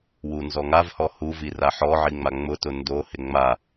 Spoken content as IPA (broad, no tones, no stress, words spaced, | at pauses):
wunzɔŋavhɔ huvi raħɔʕi ŋ͡maŋ͡mʊtʊ ndohɪ ŋ͡ma